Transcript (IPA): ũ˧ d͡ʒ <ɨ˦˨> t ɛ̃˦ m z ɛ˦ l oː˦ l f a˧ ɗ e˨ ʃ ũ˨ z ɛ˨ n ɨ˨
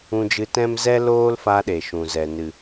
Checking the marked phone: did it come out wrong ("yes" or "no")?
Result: yes